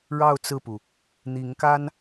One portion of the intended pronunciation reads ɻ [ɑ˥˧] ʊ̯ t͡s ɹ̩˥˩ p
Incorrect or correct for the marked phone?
correct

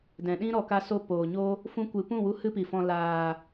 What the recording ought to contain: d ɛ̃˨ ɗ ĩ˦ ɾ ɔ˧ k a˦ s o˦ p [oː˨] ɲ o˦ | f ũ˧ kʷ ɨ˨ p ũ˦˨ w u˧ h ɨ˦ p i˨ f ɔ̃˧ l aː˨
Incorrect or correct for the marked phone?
correct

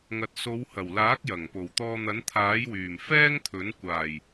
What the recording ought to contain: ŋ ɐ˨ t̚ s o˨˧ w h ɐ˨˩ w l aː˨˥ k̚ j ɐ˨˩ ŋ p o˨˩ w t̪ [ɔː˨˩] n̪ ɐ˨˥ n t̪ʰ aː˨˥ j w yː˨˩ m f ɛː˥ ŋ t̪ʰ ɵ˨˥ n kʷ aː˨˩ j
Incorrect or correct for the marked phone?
incorrect: ɔː˧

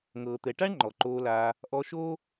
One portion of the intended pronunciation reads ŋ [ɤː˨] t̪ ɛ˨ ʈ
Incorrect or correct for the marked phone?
correct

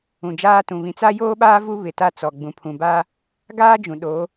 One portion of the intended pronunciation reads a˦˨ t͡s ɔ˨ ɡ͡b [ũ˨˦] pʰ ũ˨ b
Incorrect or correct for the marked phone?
incorrect: ũ˨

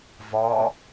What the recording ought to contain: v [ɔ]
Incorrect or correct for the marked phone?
correct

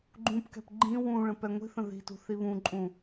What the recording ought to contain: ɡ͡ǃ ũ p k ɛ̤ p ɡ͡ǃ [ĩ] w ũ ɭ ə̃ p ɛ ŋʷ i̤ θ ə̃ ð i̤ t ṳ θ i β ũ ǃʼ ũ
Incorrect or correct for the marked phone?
correct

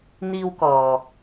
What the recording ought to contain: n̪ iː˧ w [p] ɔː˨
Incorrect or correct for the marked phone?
incorrect: k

